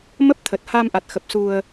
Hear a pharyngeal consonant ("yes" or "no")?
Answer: no